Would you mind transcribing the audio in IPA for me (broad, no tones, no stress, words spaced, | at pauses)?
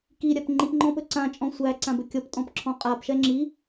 kiɾʲap ŋ͡ǃipŋ͡ǃɔ̃pɵ ǀãt͡ʃʼɔ̃ sʷæǀãbɵ kʲɔptʼɔ̃pǁʰɔ̃ qʼapʃɛ ŋ͡ǁi